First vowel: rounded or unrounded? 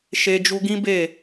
unrounded